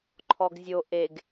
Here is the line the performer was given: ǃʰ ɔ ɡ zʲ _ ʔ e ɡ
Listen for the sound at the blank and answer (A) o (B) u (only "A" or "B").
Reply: A